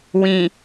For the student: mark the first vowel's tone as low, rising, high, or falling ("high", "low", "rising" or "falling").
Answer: low